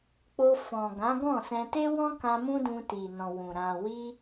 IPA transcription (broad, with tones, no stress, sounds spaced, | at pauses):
k͡p o˧ f ɔ̃˨ ɡ ã˨˦ ɡ ɔ̃˦˨ s ɛ̃˧ t e˦ w ɔ̃˦ k ã˧ m ũ˦ d ũ˧ t i˨ n ɔ̃˨ w ũ˨ ɾ ã˨ w i˧